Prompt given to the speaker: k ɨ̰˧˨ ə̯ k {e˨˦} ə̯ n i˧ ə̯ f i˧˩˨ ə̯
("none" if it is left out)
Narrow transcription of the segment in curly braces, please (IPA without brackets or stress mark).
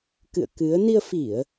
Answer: ɨ˨˦